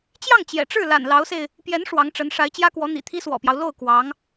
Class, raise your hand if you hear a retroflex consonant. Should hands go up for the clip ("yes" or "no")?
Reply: yes